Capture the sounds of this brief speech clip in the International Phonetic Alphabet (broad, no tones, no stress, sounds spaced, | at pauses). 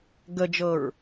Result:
ɡ ə d͡ʒ ɤ ɹ